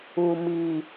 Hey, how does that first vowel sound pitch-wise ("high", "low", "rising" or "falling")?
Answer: low